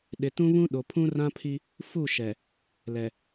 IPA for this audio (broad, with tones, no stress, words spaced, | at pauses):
ɗɪ˨tũ˦βũ˦ ɗo˨pʰũ˦rã˦pʰi˦ | fu˦˨ʃɛ˨ | lɛ˨